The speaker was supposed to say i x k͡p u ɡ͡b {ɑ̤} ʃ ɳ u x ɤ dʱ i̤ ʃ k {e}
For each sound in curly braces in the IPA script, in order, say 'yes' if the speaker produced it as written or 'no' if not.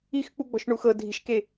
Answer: no, yes

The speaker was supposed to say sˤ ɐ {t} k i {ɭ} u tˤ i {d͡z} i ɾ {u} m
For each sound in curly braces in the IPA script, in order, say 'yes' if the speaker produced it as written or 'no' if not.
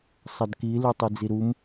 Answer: no, no, yes, yes

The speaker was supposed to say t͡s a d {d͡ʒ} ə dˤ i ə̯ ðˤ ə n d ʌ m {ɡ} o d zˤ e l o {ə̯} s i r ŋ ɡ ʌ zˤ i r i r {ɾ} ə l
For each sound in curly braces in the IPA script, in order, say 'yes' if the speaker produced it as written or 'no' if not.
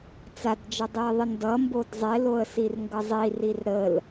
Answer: yes, no, yes, yes

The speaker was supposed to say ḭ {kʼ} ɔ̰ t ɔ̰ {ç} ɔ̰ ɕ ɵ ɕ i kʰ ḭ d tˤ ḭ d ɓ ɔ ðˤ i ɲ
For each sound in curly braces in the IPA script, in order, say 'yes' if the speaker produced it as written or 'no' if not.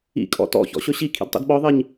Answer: yes, yes

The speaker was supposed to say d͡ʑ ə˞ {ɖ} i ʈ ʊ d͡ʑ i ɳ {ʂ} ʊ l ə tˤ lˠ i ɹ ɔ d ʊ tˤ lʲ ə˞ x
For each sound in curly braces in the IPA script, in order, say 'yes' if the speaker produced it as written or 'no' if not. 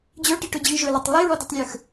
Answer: no, no

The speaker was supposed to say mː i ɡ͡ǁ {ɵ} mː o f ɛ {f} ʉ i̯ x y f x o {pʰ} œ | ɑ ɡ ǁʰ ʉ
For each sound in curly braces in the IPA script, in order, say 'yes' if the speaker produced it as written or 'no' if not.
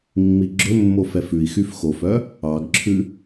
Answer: yes, yes, no

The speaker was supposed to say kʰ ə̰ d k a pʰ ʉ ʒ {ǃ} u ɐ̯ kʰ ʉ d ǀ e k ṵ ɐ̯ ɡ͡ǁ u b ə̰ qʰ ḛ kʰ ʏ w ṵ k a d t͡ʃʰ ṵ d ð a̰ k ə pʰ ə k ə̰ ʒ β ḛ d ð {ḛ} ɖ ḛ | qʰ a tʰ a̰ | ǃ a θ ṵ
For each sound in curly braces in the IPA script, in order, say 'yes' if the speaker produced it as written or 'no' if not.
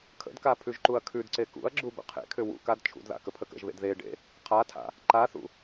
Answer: yes, no

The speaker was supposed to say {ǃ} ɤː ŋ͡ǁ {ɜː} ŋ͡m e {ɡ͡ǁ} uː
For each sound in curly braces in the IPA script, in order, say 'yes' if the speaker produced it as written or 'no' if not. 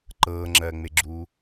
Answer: yes, yes, yes

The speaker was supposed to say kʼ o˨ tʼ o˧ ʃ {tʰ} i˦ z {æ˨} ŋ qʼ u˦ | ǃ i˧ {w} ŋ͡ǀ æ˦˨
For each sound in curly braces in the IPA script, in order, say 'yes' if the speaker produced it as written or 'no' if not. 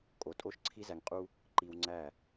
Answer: no, no, yes

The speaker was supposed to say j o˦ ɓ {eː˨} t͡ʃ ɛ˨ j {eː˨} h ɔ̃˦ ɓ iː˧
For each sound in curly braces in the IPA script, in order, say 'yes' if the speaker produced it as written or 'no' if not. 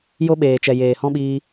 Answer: yes, yes

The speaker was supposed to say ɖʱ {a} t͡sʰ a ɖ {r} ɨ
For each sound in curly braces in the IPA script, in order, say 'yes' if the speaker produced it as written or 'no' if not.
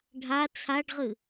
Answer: yes, no

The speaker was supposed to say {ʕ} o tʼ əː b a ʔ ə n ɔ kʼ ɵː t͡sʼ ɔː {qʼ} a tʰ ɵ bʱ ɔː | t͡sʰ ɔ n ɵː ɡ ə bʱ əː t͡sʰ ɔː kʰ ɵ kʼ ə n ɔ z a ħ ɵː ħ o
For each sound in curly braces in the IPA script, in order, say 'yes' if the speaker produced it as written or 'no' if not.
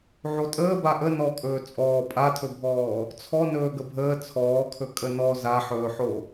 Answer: yes, no

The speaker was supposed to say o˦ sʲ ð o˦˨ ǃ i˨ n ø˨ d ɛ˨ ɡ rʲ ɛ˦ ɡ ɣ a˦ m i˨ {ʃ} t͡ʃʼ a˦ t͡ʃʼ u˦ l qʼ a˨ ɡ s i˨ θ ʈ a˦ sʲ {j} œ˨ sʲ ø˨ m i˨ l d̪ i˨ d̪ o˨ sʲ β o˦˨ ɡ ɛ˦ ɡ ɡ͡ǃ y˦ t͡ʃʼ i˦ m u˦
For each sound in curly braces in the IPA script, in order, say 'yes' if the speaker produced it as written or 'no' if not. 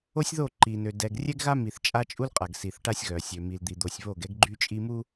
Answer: no, no

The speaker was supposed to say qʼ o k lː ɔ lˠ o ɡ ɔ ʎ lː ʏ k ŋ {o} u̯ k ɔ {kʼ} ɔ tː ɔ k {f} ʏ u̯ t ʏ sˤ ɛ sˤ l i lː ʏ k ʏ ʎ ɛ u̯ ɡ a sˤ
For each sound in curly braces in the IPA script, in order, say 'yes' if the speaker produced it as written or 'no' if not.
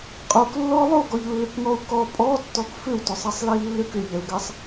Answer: no, no, yes

